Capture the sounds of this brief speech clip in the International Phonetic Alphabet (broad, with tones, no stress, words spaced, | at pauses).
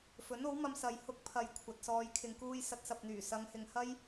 fɵ˨˥no˨˥wmɐ˧m sɐ˨jhʊ˧k̚ pʰɐ˨j kʷʰɐ˨t̚sɔː˧jkʰɪ˧ŋkuː˥j sɐ˧t̚sɐ˨p̚n̪yː˨˩ sɐ˨˧ŋhɪ˨ŋhɐ˥j